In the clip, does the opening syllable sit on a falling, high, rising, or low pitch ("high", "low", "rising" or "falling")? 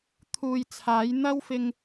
low